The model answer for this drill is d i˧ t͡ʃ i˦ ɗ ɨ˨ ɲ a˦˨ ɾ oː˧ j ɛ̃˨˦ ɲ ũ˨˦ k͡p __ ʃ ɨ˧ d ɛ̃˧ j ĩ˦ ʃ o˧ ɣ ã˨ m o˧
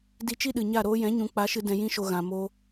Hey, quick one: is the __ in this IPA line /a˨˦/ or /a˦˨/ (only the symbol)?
a˨˦